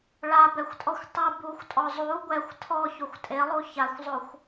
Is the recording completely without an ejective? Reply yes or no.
no